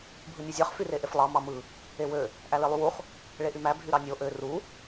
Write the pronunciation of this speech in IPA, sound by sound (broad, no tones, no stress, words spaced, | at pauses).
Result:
bʱɯnʲøzʲɑχ fyreʔeflˠɑ mɑmɯ | ewø | ʔælelˠywuχ | ɭeʔymæ bʱyɾɑnʲo ʔø ru